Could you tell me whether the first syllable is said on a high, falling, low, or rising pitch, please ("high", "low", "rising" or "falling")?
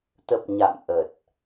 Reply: low